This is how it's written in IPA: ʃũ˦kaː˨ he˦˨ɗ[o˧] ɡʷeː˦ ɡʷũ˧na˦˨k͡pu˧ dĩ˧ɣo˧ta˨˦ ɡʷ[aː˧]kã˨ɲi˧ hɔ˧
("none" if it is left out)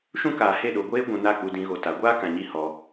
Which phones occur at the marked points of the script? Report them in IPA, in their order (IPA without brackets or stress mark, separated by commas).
o˧, aː˦